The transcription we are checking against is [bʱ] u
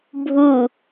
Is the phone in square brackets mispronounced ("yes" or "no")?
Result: no